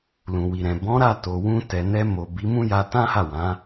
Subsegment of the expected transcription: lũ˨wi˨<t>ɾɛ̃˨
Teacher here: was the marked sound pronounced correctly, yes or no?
no